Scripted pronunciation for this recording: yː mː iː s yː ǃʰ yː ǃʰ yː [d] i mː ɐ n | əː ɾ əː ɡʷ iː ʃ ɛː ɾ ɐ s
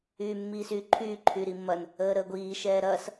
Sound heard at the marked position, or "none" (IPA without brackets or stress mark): ɾ